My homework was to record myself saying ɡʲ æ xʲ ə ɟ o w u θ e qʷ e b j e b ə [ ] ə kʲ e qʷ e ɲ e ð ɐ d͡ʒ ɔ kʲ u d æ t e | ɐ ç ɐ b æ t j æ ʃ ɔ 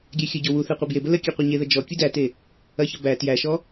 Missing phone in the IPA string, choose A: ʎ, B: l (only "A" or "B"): B